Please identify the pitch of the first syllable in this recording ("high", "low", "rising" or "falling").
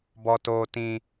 high